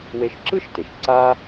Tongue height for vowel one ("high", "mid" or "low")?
mid